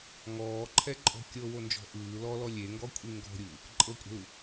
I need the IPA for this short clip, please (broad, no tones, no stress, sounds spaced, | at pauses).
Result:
ŋ ɔː ǃʰ ɛ ǃʼ ɔ̤ kʲ ɤ w o n d͡ʒ ɔ̤ ʔ ɯː l ɔ l ɔ lʲ e ŋ ɡ ɔ kʷʼ i ŋ ɡ ɔ̤ ɾʲ ɯː | ǃʼ ɤ kʷʼ ɛ̤ l u